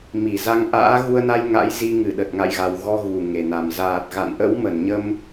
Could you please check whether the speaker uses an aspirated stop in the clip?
no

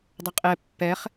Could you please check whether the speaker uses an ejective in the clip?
yes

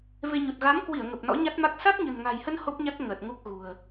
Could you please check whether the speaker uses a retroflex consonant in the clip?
no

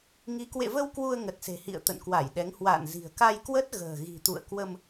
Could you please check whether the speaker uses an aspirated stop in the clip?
no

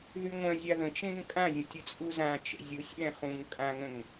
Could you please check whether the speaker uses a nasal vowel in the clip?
yes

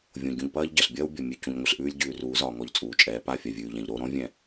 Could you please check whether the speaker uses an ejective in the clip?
yes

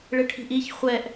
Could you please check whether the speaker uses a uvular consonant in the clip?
yes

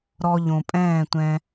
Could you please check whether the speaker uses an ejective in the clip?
yes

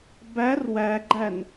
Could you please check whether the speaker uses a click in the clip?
yes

